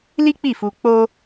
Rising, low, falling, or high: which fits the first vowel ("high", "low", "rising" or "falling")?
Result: high